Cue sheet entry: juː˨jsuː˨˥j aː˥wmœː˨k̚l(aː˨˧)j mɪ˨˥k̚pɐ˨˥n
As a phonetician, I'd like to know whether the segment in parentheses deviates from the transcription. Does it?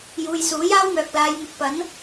no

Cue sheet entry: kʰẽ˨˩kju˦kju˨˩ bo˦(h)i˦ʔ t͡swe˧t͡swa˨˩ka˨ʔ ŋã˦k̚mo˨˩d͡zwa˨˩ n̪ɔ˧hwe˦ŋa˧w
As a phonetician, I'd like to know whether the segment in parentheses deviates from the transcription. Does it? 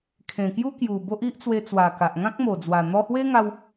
yes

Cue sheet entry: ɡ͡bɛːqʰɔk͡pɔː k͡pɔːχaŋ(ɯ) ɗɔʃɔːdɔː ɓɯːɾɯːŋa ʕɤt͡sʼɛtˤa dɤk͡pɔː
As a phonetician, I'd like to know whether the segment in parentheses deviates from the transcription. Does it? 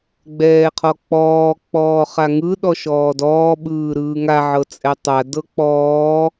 no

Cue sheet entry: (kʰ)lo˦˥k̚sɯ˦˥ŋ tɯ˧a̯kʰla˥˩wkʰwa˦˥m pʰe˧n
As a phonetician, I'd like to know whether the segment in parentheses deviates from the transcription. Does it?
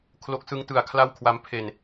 no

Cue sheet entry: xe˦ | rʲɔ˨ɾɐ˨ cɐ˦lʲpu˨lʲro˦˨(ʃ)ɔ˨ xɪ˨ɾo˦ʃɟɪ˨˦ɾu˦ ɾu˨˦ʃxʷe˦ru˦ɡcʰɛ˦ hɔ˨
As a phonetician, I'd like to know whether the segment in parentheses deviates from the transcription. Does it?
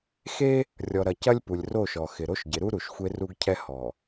no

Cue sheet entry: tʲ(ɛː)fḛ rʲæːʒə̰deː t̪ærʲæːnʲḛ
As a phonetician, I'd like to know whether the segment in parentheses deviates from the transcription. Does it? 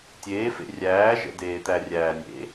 yes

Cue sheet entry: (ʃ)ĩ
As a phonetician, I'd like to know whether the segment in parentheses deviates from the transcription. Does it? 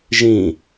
yes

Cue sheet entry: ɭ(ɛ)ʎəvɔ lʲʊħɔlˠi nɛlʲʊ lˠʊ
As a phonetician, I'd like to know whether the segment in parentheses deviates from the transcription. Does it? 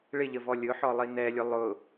yes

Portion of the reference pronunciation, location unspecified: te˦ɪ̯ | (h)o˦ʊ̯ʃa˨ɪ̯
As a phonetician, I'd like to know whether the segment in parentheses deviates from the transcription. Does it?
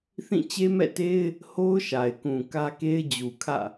no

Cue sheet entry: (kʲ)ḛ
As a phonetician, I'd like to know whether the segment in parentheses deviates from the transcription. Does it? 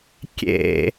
no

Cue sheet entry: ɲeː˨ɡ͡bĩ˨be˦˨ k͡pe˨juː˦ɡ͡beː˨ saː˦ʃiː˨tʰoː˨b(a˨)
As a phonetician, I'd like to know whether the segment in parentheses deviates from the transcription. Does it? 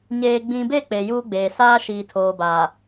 yes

